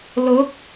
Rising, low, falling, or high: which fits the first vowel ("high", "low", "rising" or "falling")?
rising